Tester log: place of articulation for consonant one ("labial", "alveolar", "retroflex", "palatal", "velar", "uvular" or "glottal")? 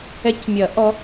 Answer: palatal